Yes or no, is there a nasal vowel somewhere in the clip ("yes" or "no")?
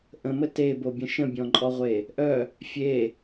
yes